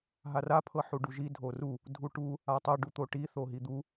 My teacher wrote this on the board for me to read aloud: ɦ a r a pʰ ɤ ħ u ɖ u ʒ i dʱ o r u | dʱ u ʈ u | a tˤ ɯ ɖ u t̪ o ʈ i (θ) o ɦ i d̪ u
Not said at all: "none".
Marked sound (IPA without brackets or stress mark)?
θ